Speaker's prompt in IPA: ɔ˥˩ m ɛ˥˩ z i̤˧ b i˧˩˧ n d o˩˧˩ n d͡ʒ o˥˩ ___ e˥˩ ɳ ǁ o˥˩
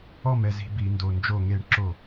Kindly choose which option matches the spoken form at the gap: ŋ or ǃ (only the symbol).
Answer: ŋ